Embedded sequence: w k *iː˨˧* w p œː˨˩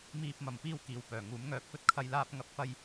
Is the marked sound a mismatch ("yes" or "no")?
yes